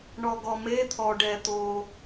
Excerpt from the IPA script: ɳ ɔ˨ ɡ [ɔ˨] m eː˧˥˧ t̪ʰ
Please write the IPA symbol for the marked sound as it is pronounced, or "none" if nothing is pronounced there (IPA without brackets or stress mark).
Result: ɔ˨